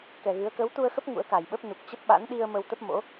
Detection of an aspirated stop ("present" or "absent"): absent